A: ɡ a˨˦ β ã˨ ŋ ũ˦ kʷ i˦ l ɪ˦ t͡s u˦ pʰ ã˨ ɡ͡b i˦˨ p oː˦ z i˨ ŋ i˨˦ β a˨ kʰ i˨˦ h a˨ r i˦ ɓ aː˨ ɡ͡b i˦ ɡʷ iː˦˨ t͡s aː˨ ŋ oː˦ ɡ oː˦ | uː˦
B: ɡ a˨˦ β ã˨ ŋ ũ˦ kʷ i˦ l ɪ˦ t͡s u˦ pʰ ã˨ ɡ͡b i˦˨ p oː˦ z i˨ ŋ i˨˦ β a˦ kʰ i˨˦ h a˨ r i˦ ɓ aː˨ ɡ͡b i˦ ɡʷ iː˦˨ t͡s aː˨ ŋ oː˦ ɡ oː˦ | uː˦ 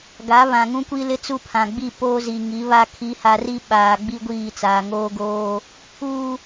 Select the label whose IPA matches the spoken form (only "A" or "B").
B